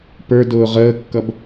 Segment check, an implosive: absent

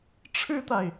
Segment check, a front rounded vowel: absent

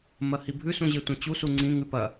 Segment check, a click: present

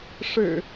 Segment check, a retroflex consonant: present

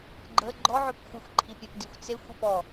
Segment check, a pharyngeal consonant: present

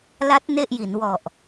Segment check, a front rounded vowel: absent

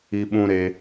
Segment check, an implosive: present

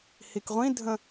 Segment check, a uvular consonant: present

